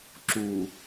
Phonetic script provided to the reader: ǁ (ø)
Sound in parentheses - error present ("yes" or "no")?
yes